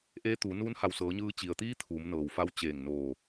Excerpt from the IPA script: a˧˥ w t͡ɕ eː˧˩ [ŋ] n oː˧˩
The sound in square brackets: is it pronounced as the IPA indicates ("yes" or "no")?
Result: yes